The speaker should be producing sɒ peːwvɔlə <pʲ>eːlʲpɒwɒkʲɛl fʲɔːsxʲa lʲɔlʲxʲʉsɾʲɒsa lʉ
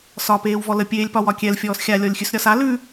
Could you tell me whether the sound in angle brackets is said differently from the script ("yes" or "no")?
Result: no